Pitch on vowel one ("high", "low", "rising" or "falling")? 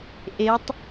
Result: rising